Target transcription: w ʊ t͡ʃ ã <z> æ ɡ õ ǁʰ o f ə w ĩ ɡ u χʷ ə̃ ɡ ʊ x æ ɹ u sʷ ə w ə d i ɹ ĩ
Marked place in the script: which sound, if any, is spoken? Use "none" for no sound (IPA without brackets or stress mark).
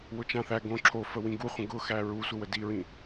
θ